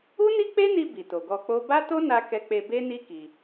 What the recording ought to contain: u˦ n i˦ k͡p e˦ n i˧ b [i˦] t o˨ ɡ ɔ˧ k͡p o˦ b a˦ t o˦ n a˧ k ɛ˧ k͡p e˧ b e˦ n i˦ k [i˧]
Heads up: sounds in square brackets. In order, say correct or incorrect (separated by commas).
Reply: incorrect, correct